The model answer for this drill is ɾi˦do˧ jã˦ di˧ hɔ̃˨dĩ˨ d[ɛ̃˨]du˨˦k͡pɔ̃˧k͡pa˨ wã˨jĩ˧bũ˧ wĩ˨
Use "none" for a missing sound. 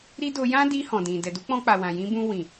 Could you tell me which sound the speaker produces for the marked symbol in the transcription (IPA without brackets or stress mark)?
ɛ˨